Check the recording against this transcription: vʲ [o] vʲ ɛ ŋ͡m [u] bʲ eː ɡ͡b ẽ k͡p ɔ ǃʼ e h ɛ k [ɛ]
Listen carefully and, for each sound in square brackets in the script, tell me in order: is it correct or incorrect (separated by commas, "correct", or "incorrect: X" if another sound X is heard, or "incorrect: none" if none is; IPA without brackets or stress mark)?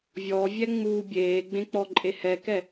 incorrect: ɔ, correct, correct